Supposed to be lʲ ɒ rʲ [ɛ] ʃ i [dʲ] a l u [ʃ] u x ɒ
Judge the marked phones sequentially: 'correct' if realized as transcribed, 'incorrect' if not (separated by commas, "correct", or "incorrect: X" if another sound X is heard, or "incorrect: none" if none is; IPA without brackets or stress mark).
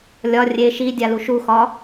incorrect: e, correct, correct